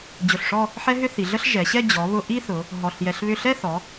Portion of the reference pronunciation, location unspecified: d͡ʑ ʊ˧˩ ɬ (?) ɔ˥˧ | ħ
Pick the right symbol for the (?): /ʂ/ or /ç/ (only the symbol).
ʂ